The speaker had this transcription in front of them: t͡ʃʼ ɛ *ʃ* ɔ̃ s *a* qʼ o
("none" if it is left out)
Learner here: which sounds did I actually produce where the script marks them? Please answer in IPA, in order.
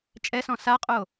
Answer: s, a

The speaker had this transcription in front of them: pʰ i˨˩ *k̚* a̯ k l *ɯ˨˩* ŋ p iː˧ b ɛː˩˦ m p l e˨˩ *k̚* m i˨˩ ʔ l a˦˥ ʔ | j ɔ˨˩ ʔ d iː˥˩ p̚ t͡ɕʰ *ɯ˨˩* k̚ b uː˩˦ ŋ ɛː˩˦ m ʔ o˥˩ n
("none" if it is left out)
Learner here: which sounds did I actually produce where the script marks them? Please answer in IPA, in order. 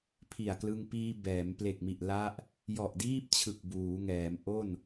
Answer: none, ɯ˧, k̚, ɯ˨˩

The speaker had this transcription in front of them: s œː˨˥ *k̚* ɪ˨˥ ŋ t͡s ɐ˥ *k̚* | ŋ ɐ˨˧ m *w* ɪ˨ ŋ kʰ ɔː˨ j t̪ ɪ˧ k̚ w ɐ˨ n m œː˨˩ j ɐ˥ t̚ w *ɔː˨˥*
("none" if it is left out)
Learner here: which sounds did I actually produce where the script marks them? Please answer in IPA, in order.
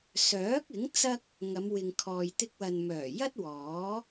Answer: k̚, k̚, w, ɔː˨˥

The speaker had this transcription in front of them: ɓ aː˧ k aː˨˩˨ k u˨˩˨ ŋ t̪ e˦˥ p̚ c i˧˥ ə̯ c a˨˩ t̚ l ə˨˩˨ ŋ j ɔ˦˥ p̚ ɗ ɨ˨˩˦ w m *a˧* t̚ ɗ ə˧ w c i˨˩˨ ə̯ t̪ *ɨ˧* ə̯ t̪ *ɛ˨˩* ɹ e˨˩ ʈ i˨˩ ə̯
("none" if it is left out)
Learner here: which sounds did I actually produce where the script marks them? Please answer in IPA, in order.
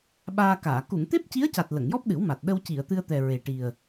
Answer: a˨˩, ɨ˧, ɛ˨˩

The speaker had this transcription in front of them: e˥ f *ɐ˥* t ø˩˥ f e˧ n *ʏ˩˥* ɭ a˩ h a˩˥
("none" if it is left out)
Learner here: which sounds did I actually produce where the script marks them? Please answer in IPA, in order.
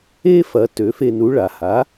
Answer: ɐ˩˥, u˩˥

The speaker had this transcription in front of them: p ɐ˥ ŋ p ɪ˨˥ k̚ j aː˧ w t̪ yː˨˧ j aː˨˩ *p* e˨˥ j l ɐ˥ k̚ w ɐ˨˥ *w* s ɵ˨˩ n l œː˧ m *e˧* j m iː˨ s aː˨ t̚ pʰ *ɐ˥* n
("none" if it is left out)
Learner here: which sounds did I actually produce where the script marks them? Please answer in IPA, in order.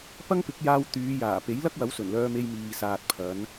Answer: p, w, e˧, ɐ˨˧

